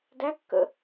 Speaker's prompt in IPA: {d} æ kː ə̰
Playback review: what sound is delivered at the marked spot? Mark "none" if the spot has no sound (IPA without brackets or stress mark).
d